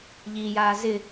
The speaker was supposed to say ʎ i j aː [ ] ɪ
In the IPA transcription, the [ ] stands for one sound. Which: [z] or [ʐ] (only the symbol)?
z